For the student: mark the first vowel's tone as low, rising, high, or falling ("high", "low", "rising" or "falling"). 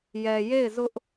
low